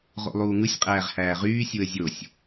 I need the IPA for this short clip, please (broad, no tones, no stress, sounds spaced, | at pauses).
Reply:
ʁ o̰ lˠ uː ŋ ɯ sʲ qʼ æː ʁ h æː ʁ yː sʲ u ə̯ zʲ o sʲ